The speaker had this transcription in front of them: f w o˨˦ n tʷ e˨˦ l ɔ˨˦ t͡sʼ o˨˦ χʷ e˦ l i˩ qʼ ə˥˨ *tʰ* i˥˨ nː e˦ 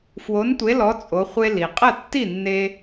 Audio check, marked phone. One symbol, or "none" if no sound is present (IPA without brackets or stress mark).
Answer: tː